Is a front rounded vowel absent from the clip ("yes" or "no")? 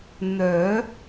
no